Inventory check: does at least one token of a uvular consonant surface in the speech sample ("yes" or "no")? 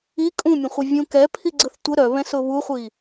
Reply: yes